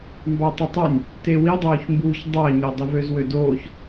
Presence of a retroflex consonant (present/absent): absent